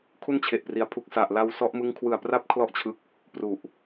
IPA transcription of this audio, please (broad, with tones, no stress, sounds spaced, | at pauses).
kʰ u˥˩ n t͡ɕʰ e˨˩ ʔ p r i˩˦ a̯ pʰ u˨˩ k̚ s a˨˩ ʔ l a˧ w s ɔ˦˥ ʔ m ɯ˦˥ ŋ kʰ w ɯ˨˩ a̯ p r a˦˥ p̚ kʰ l ɔ˥˩ ʔ t͡ɕʰ ɯ˦˥ k̚ | p r u˨˩ ʔ